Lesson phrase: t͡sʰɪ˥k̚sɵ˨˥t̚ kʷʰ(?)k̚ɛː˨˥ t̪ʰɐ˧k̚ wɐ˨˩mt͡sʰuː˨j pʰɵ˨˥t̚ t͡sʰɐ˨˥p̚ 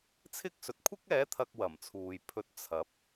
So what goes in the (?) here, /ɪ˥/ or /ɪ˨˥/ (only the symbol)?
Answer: ɪ˥